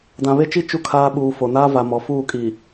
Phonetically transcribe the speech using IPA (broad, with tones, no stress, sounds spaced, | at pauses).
d ã˨ β e˦ t͡ʃ i˦ t͡ʃ u˦ kʰ aː˦ ɓ uː˨ f o˨ n aː˦ v a˨ m ɔ˨ f uː˦˨ kʼ i˨